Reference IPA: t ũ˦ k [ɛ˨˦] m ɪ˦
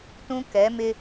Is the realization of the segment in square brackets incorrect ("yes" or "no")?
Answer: no